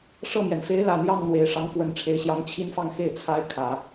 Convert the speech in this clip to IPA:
ʂ ɤ˥˩ m j ɛ˩ n f e˧˥ ɪ̯ l ä˨˩ n̪ j ɑ˥˩ ŋ n̪ w e˨˩ ɪ̯ ʂ ɑ˧˥ ŋ f w ə˧˥ n ʈ͡ʂʰ e˧˥ ɪ̯ ɕ j ɑ˧˥ ŋ t͡ɕʰ i˥ n f ɑ˥˧ ŋ x e˥˩ ɪ̯ t͡sʰ a˥ ɪ̯ kʰ ä˨˩˦

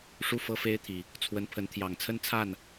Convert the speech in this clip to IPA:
ʂ u˥˨ f ɤ˦ f e˦ ɪ̯ t̪ʰ i˨˩ | t͡sʰ w ə˨˦ n pʰ ə˨˦ n t̪ʰ j ɑ˨˩ ŋ t͡sʰ ə˦ n t͡sʰ a˥˨ n

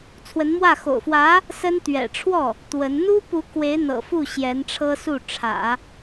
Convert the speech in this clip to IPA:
t͡sʰ w ə˧˥ n m w ä˥˩ x o̰˨˩ ʊ̯ f w ä˧˥ | s ə˥ n t̪ ɥ ɛ̰˨˩ ʈ͡ʂʰ w ɔ˥˩ | t̪ w ə˧˥ n n̪ u˥ p u˧˥ k w e˧˥ ɪ̯ n̪ ɤ̰˨˩ f u˥˩ ɕ j ɛ˧˥ n ʈ͡ʂʰ ɤ˥ s u˥˩ ʈ͡ʂʰ ä̰˨˩˦

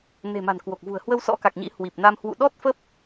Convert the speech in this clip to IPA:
n e̤˨˩ m a̤˨˩ n k w o˨˩ k̚ v ṳ˨˩ ə̯ h w ə˧ w s ɔ̰˧˥ k a˨˩ k̚ ɲ ḭ˧˥ h w i˨˩ p̚ n a˧ m h w ṵ˧˨ ɗ ɔ˦˥ t̚ f ə˦˥ p̚

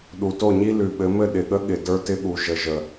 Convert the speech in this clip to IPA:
ɗ u˨ t o˦˨ ɲ i˦ l ʉ˨ ɓ ɘ˨˦ m ɘ˦˨ ɗ ɪ˨ ɠ ə˦ ɠ ɪ˨ d ə˞˦ t ɪ˦ ɠ u˨ ʒ ə˨ ʒ ə˨

